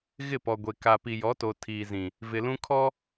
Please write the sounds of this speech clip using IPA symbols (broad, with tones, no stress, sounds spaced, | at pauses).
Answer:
ɣ ɪ˦˨ p ɔ˨ ɡʷ e˨ k a˨ p i˨ j ɔ˨˦ t o˨ tʰ iː˨ z ĩ˨ | v ɪ˨ l ũ˦ kʰ ɔ˦